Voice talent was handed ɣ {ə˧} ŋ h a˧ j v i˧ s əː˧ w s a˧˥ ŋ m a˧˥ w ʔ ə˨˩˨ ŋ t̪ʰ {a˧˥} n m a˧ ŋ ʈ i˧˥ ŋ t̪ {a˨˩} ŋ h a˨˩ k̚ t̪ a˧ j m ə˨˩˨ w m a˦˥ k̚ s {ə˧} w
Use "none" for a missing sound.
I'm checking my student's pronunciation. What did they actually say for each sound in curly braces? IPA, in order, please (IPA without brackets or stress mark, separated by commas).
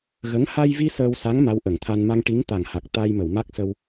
ə˧˥, a˧, a˨˩, ə˧